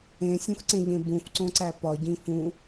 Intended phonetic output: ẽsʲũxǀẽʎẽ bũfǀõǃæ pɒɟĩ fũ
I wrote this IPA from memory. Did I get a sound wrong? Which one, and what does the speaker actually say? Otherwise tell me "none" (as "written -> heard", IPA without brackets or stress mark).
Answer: ǃ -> ǀ